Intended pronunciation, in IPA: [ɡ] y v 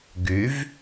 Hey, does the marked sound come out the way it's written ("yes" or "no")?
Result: yes